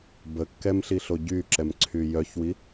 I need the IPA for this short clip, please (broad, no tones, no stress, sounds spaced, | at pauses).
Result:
b ə kː ɛ m ɬ i ɬ o ɟ y ǁ ɛ m ǀʰ y j œ ç w i